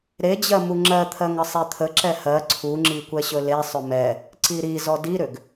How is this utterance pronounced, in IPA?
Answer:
ɾed͡ʑɜ muŋ͡ǁɜt̪ʰɜŋ əsˤet̪ʰə ǁɛhɜ ǀʰuŋ͡ǁi kʷɛɕɵle sˤʏmɛ | ǀiɾi zɔdiɾʏɡ

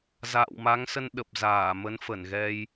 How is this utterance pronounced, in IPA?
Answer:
za̰ː˧˨wma˨˦ŋsə˧n ɗə˨˩p̚zaː˧˩mə˨˦n fə˧˩nɣɛ˧j

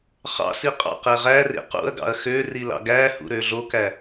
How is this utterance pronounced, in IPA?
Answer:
χɑ̰si qʼɑ̰qeʁærḛ qṵɐ̯ɡɑ̰ɐ̯ xø rilɑ̰ɡæhṵ ɾøɮokæ

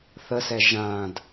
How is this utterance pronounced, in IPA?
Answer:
θəsɛ ʒãd

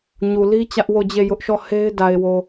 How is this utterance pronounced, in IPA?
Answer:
ɲu˨li˦ t͡ɕä˦ʔwo˦˨d͡ʑe˦˨ jʊ˦ʔʃɔ˦˨ he˦ɪ̯ da˨ɪ̯wo˨

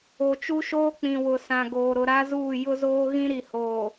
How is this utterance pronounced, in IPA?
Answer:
o˨t͡ʃu˦ʃoː˦ k͡pĩ˨wʊ˨sã˨ ɡoː˨ɾʊ˨ɾa˦zuː˦˨ jʊ˦zoː˦ ɣĩ˦ ɾi˨hoː˨

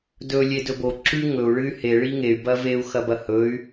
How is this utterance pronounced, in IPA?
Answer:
dɵ lʲedɵbo ǁʉ ŋɵu̯ ɭɨy̯he ɭiŋey̯ bɐveu̯ xɐbɐhɵy̯

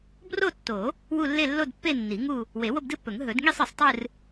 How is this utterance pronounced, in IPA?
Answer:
bro˥˧tːo˨˩˦ | wu˥˧ lːe˥˧lːo˥˧dpːe˥˧nːi˨˩˦ ŋu˥˧ | we˨˩˦ wo˥˧bdɨ˥˧pːɵ˨˩˦ŋ ɦɵ˨˩˦dŋi˥˧sˤ ɨ˨˩˦sˤtˤɨ˥˧r

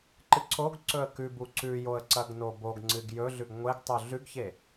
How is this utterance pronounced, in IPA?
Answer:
ǃɨǀoɡǀɵə̯ kʉbu ǀʉjoə̯ ǀɐɡnoboɡŋ͡ǀɨɡ jɵɮʉɡ ŋʷeɡtˤu ɮʉɡçe

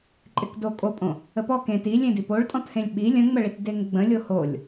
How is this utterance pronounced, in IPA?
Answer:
ǃʼɪkdo kʼopʼõ | əpɔ kẽ ti lʲẽdipoɭ tʼɔ̃thẽlʲɓi lʲə̃ŋ͡məɭit deŋɡ͡bə̃ lʲoholʲ

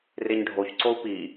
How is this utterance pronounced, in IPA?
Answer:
reɲɖʱoç ǀou̯pi

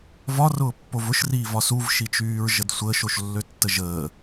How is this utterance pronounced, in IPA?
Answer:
vɒrʊːpːov ʊʃriːvɒ suvʃit͡ʃyːɹʒəd sʷəːʃoʃlːøtːə ʒəː

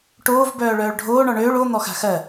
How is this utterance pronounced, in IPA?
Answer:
ʈoːv bœːɭœːɭɖʱoː ɳɔɳøːɭ o n̪ɔxa̤xɜ

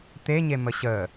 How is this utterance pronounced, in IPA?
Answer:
t̪eɲemə ɕə

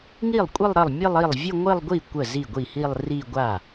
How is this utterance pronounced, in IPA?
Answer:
ŋi˥˩lˠkʷʼɘ˥˧lˠ ɾə˥˩lˠ mʲɘ˥˧lˠi˥˩lˠ vʲə˥˧ŋʷɘ˥˧lˠɡʷi˥˩ kʷə˥˩zi˥˩ɡʷi˥˩hi˥˧lˠ ri˥˧ɡʷa˥˩

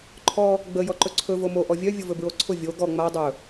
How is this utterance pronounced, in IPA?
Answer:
ǃʰɔ | ɡ͡bə jɔǃɵǀʰɵ vomo ʔɔvʲœ vʲʊvɵbɹoǀʰʊ vʲo ɡɔ ŋ͡ma dˤɵ

